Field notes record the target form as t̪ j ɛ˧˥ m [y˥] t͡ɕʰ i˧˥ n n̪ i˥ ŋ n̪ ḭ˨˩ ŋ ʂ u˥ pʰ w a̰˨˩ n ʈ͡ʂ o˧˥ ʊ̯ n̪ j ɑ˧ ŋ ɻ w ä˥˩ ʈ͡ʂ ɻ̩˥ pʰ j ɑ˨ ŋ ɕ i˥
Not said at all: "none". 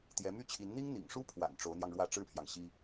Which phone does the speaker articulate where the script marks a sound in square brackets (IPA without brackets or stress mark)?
y˥